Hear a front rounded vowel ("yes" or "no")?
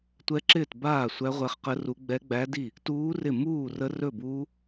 no